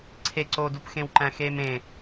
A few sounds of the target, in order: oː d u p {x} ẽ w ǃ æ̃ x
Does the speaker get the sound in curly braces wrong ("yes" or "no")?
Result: no